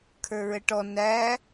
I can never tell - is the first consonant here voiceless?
yes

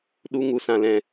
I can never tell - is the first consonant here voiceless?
no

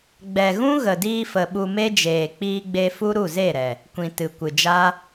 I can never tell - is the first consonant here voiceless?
no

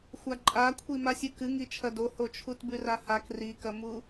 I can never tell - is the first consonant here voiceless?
yes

